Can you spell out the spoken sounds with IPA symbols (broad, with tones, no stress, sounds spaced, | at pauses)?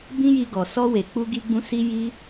b ĩ˦ j i˧ ɡ ɔ˨ s ɔ˧ w e˨ k͡p u˧ ɡ i˦ ɡ͡b ũ˦ s i˦ j i˦